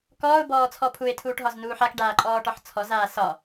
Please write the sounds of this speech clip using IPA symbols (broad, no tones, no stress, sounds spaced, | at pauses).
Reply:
k ɔː ʊ̯ b ɔː t͡sʰ ɔ pʰ u ɪ̯ tʰ uː ʈ ɦ ɒ z n uː ħ a k ɖ aː ǃʼ ɔː ʈ ɒ ħ t͡sʰ ɔ z aː s ɒ